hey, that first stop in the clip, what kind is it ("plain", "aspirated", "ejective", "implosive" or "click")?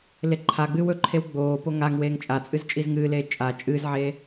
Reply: click